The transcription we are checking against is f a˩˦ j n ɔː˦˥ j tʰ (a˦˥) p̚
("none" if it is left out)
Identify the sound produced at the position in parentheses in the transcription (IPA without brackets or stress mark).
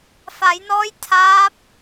aː˦˥